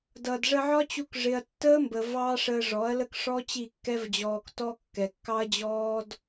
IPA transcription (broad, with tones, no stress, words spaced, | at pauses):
dʌ˨dʐə˧ʕɒ˦t͡ɕu˧k ʐɪ˧ɐ̯ tːəː˦mbə˨ vɑ˦ ʂəː˧ʐɔ˨˦ɐ̯lə˦k ʂɔ˦ t͡ɕi˦˨kːɛ˦vd͡ʑɔː˧ktɔ˦ kːɛ˨kːɑ˦ɐ̯d͡ʑɔː˦d